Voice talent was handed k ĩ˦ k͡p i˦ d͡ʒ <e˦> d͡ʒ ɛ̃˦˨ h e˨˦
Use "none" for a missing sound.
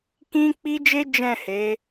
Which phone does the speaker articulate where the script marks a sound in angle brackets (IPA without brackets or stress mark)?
e˦